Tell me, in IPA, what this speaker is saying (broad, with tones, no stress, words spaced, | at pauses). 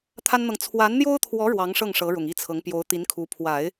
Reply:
t̪ʰa˥nn̪ɤ˨ŋ t͡sʰwa˧˥nn̪jo˥ʊ̯t̪ʰwɔ˧˥ ɻwɑ˧˥ŋʂɤ˥˩ŋ ʂɤ˧˥ɻʊ˨˩ŋi˥˩t͡sʰɤ˧˥ŋ pjo˧˥ʊ̯t̪i˧˥nkʰu˧˥ pʰwa˨˩˦ɪ̯